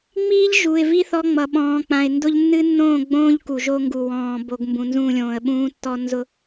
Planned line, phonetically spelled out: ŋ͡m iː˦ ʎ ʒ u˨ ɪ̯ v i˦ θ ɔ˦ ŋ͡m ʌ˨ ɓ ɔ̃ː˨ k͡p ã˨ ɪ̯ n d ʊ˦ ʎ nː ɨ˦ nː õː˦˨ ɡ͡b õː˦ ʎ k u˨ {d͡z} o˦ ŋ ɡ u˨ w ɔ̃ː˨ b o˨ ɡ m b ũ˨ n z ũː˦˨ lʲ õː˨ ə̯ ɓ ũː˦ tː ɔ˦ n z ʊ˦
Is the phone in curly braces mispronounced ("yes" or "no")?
yes